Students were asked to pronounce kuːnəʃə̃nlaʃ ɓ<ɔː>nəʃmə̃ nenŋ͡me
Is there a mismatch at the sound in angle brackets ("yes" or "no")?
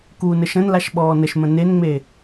no